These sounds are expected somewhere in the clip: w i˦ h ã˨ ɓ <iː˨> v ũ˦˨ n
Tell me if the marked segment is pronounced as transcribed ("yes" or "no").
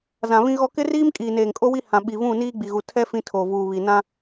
no